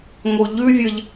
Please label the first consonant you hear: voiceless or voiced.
voiced